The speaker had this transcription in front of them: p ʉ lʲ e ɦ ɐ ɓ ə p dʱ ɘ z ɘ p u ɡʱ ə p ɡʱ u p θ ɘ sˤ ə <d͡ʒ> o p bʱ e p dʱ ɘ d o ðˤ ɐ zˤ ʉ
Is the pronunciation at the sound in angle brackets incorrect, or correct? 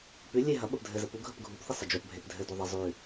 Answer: correct